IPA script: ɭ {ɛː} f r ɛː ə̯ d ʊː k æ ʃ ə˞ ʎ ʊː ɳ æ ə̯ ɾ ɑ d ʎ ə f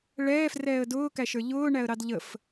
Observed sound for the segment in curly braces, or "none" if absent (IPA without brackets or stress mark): ɛː